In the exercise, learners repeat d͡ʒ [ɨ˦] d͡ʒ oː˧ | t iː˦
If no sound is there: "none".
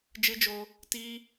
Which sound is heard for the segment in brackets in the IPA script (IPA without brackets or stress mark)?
ɨ˦